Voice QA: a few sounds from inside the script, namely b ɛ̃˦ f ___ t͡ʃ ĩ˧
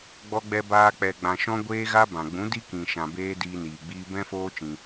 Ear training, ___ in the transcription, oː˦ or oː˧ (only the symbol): oː˦